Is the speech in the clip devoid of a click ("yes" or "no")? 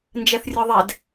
yes